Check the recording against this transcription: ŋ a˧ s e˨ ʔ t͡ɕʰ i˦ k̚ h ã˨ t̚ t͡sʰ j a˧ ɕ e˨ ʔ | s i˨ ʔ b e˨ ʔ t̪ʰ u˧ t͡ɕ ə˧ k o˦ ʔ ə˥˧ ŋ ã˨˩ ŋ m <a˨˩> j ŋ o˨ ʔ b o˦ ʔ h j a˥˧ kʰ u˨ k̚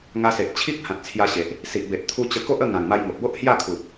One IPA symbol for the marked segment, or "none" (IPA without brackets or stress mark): a˧